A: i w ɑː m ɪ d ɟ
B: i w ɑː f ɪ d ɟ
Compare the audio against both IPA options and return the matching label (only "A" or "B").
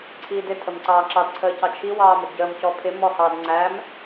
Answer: A